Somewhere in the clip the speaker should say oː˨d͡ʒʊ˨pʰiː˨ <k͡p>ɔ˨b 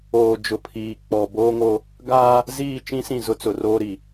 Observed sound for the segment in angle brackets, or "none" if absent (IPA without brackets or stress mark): k͡p